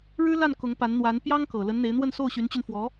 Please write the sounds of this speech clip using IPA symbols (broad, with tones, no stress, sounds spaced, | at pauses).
ɻ ɻ̩˥ l a˥˩ n k ʊ˧˥ ŋ p a˧˥ n n̪ w a˧˥ n p j ɑ˥ ŋ k ɤ˨˩ l ə˧˥ n n̪ e˧˥ ɪ̯ n̪ w ə˥˧ n s o˥˩ ʊ̯ ɕ y˧˥ n t͡ɕ y˧ n f w ɔ˧˥